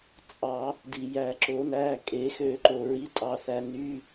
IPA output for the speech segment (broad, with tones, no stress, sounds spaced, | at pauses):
t͡sʼ ɑ˨˩˦ | d i˩ j æ˨˩˦ ǁ o˨˩˦ n æ˩˧˩ kʼ e˨˩˦ x ø˨˩˦ ǃ o˩ ɹ i˩˧˩ tʼ ɑ˩ θ æ˩ n y˩˧˩